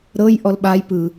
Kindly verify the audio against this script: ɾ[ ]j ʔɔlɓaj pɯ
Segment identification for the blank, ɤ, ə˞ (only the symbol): ɤ